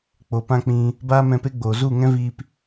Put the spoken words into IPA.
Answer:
k͡po˨pã˦k͡pĩ˧ | baː˦mɛ̃˧pe˦ɡ͡boː˨ zu˦˨ŋɛ̃˦viː˧p

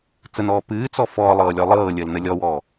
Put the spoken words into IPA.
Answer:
t͡sənɔː pɨːt͡sɔ fɔːlˠɤːlʲɔ lˠɤːlʲəːlnə lʲɔwɔː

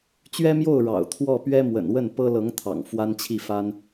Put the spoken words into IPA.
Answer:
t͡ɕɥɛ˥mjo˥˩ʊ̯ ɻɑ̰˨˩ʊ̯t̪ʰwɔ˥˩ pɥɛ˥mwə̰˨˩n wə˥˩npɤ˥lɤ˧˥ŋ t̪ʰɑ̰˨˩ŋfwa˥nt͡ɕʰi˥˩fa˥n

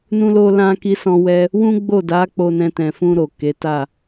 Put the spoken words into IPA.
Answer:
nũ˧lo˧ lã˧ki˧ sɔ̃˧wɛ˧ | wũ˦ɡ͡bo˦˨da˨˦ k͡po˧nɛ̃˧tɛ̃˨fũ˧ ɾo˨ke˨˦ta˦˨

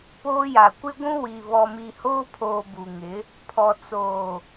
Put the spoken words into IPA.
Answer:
poː˦ja˨ kʷɪ˦ɡʷũ˦wi˨ βɔ˨mi˨hoː˦pʰoː˨ bu˨ŋɪ˨˦ | pʰɔ˨ t͡soː˨

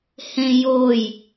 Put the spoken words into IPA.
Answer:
hẽjoj

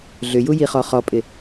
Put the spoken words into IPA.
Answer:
ɮʏju jiχɔχɔpʼɪ

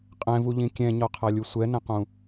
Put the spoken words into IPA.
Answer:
qʼɛ̃vuʎĩ kʲɛ̃ɲɔqʰalʲu sʷɛnɛ̃qũ

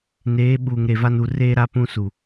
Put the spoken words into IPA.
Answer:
neː˨˦ ɓuː˨ŋɾe˨va˦n u˨ re˦ ɾa˦pũ˦su˨

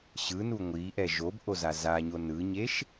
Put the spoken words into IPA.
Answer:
ɕɯnu ŋʷiʔɛ ʒobʔoza zaɲo nɯɲeʃ

